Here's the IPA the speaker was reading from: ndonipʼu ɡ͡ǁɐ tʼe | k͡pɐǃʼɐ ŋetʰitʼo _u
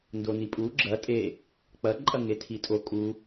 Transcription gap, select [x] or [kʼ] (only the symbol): kʼ